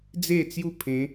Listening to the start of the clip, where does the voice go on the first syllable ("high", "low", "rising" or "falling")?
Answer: falling